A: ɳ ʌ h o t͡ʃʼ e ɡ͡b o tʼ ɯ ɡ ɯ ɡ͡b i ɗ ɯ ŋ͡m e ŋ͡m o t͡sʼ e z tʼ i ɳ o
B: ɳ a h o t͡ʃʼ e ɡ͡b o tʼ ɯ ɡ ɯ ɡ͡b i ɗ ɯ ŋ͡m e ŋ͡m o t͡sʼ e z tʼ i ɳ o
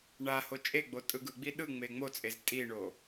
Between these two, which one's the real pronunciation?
B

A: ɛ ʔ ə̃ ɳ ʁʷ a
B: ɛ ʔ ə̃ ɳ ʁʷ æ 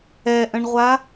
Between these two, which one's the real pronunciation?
A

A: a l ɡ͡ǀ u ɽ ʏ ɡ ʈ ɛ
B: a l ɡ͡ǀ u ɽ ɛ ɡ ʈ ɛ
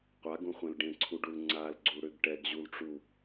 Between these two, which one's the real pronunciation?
A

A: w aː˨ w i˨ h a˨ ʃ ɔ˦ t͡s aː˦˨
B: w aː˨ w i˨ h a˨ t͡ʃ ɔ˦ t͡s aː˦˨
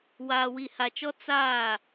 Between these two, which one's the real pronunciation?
B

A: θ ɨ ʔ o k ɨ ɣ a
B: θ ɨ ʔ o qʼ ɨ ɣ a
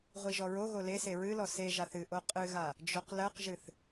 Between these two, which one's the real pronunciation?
B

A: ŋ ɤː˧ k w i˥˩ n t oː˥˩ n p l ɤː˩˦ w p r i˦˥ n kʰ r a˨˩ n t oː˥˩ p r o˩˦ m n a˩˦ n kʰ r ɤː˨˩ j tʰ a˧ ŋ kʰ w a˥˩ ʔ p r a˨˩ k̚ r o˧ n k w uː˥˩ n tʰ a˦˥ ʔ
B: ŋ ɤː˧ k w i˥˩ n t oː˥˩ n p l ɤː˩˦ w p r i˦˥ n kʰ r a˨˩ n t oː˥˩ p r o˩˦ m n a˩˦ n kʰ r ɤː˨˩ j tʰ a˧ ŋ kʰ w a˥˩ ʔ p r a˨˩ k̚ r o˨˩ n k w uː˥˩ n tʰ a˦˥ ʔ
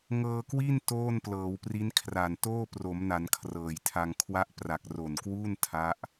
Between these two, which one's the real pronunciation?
B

